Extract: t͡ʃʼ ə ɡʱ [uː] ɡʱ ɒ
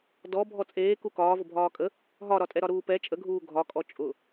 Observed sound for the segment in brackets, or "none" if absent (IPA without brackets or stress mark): uː